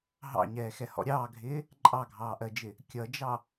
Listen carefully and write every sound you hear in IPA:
ɦ ɑ̰ ɲ ɛː x ɛ h ɔ̰ ɾʲ ɑː ɡʱ ɪː | ǃʼ ɑ ɡʱ ɑː ʔ ɜ d͡ʒ ɪ | kʲ ʌ d͡ʒ ɑ

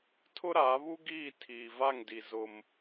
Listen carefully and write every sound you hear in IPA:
tʰ ʊ˦ ɾ aː˨˦ β u˦ ɡ iː˦˨ tʰ iː˨ v a˦˨ ŋ d i˨ z ʊ˦ m

